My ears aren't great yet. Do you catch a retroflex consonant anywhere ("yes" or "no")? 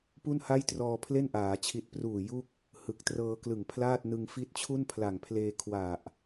no